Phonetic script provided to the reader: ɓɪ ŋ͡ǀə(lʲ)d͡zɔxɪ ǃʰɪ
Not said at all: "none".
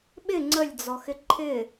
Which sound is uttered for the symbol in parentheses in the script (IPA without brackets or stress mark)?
lʲ